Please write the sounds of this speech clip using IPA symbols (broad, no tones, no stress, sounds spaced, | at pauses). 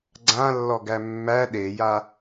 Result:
ɡ͡ǀ ã lː ɔ ɡ æ mː æ ɗ e j a